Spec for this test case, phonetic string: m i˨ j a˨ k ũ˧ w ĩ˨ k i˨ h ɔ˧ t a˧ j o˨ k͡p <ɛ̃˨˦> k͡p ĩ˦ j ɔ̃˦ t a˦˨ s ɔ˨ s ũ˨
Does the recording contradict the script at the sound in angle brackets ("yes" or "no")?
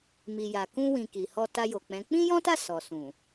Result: no